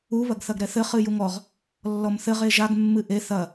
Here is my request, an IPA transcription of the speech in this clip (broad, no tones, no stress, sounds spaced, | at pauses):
u β ɐ ɡ θ ɐ ɡ ɾ ɛ θ ɘ χ ɨ j u ŋ ɔ ʁ | lː ɔ m θ ɘ ʁ e ʒ a ɡ mː ɨ ʔ e θ ɐ